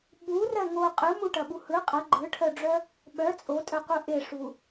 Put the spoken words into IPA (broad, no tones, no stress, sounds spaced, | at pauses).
ɓ u r ɜ ŋ o qʼ ɯ m u ʈ ɐ ɓ u h ɯ qʼ ɐ ɡ͡ǃ ɯ ʈʰ œ ɖ͡ʐ œ | ɓ œ t͡sʼ o tʼ œ qʷ ɯ ʔ e ʂ u